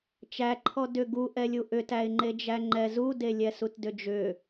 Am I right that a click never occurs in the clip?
no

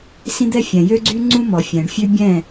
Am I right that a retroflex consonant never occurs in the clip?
no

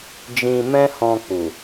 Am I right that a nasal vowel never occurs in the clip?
no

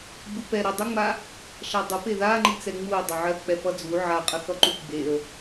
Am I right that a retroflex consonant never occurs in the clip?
yes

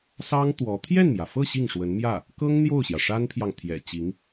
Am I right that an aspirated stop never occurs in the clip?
no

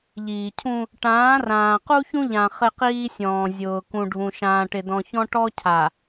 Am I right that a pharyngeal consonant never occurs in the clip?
yes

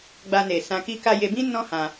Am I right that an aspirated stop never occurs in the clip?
yes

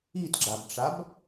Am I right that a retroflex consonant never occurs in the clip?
no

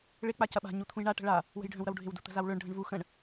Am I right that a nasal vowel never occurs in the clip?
no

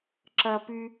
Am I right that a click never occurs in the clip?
no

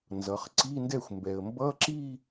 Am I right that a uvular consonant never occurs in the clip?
no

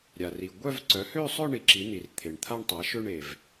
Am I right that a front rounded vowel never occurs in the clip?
no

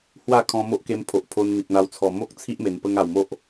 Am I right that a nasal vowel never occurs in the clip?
no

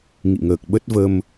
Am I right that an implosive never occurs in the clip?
no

